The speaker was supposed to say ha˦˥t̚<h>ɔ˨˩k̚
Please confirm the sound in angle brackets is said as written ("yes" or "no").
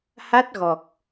no